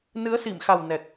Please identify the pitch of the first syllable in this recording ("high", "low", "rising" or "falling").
rising